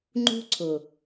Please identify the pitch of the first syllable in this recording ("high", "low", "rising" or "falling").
high